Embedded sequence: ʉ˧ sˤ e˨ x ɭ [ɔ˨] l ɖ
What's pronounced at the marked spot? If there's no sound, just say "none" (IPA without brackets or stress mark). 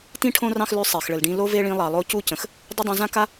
ə˨